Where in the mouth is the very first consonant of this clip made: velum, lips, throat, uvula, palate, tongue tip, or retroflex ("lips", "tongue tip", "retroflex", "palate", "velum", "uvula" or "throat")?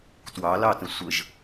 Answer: tongue tip